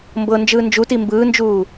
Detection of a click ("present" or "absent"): absent